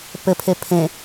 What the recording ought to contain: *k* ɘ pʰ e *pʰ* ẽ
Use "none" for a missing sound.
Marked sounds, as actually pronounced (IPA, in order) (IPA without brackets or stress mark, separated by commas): p, pʰ